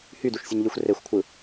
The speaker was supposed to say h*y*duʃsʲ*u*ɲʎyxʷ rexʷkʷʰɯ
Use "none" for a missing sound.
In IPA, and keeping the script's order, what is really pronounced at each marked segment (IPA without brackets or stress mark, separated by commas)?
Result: y, u